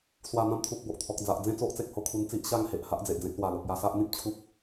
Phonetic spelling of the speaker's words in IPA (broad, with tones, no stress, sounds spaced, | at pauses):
s w a˨˩ n̪ ã˧ m t̪ʰ u˨ k̚ b o˨ ʔ t̪ʰ ɔ˨ k̚ d͡z a˨ ʔ d͡z ẽ˥˧ t͡s o˦ ʔ t͡s e˨ k̚ h o˧ kʰ u˧ n t͡s i˦ ʔ ɕ a˦ ŋ h e˨ ʔ h a˦ ʔ d͡z e˨ ʔ d͡z ẽ˦ k̚ l w a˨˩ l o˨ k̚ j a˧ s a˦ ʔ n̪ ĩ˦ p̚ t͡ɕʰ u˦ k̚